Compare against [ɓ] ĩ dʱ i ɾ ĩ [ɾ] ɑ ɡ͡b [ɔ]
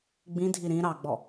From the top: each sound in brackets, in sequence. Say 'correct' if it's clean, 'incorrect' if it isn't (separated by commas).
incorrect, correct, correct